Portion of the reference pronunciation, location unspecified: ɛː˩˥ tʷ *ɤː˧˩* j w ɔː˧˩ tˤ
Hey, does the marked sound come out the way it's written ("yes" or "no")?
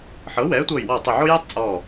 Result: yes